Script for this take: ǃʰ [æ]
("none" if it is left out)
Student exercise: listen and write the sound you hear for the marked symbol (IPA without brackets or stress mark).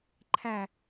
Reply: æ